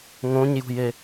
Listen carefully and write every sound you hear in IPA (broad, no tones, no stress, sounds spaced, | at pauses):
ŋ õ ɲ j ṳ j e